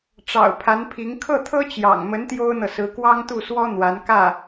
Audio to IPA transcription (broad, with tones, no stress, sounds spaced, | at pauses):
ʈ͡ʂ ɑ̰˨˩ ʊ̯ pʰ a˧˥ n pʰ i˧˥ ŋ kʰ ɤ˥˩ t̪ʰ ɤ˥ t͡ɕ j ɑ̰˨˩ ŋ m ə˧˥ n t̪ j o˥ ʊ̯ n̪ ɤ˨ s ɹ̩˧˥ k w ɑ˥ ŋ t̪ u˥˩ s w ɔ˥ n̪ w a˧˥ n k ä˥˩